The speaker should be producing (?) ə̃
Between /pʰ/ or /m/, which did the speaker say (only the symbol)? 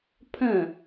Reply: pʰ